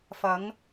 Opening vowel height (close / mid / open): open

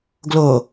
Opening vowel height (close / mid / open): mid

